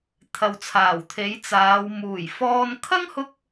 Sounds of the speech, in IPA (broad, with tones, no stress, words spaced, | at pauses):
t̪ʰɐ˨wt͡sʰaː˨˩wt̪ʰe˨˥j t͡saː˨˧w muː˨˩jfɔː˧n kʰɐ˥ŋhʊ˧k̚